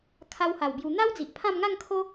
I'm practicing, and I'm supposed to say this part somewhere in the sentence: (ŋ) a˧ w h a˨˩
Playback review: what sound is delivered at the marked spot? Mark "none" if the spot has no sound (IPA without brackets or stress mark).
kʰ